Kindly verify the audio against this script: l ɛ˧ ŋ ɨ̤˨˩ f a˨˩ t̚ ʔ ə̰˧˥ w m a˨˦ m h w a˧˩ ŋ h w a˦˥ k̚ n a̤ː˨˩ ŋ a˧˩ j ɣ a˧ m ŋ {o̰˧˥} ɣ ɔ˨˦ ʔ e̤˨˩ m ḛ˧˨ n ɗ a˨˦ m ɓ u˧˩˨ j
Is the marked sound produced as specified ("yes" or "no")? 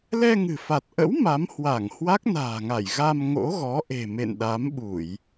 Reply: yes